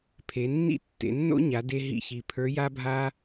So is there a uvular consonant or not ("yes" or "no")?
no